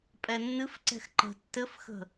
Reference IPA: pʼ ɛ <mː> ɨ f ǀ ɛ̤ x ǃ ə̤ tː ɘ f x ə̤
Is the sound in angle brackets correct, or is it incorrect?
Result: incorrect